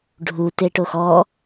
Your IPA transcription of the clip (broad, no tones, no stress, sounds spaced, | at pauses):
ɖʱ u t e ʈ o x ɔ